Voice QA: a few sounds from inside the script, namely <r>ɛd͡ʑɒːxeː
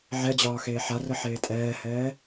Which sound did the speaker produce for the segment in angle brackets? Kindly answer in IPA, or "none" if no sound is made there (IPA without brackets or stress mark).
ʕ